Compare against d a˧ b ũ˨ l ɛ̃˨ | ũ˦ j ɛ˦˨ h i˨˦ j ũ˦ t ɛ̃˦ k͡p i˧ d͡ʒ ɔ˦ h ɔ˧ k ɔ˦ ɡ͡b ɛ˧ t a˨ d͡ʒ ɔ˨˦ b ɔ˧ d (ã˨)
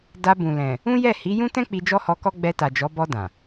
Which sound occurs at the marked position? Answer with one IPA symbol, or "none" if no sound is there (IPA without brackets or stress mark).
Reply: ã˨